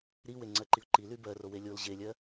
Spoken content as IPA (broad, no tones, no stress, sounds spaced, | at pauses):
ɾ i w e ŋ͡ǀ ɜ ǃ i ʊ̯ ǃ i l y b ɜ r o w e lʲ o l ʑ e lʲ ɜ